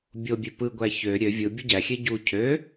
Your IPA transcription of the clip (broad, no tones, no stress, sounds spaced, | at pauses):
bʲ o bʲ ø p ɯ ɡʷ æ ç ø ɾʲ ø vʲ ɯ bʲ u ɟ æ xʲ e ɟ u cʰ ø